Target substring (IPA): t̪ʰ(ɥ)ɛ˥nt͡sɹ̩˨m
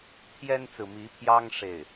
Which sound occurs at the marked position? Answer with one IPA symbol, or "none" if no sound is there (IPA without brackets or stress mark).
j